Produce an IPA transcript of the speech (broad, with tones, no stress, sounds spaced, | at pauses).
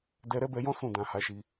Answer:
d ɛ˧ ɾ ɛ˦ b ɛ˧ j ɔ̃˦ s ũ˦˨ d ã˨ h a˨˦ ʃ i˧